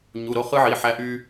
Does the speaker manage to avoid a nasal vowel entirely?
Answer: yes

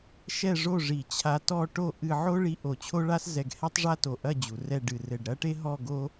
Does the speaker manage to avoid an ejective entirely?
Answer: yes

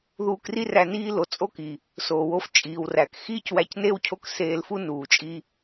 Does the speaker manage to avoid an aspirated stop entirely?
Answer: no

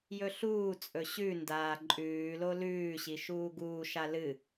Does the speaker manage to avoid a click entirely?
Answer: no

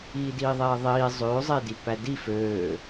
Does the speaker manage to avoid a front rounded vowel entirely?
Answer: no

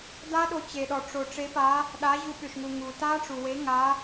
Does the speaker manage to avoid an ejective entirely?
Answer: yes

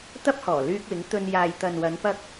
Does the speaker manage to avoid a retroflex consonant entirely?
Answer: yes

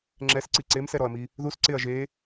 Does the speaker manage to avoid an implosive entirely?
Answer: yes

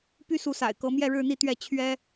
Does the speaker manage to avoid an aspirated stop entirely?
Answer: no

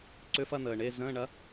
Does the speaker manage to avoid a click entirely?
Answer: no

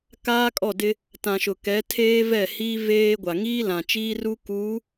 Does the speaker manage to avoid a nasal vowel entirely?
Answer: no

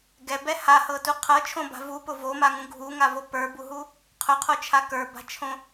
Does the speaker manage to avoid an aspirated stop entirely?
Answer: no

